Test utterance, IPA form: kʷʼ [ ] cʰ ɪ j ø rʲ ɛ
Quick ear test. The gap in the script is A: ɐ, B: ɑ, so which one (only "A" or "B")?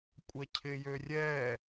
A